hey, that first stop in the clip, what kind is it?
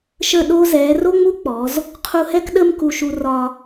implosive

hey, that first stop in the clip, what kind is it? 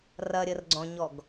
click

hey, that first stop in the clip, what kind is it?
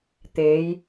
plain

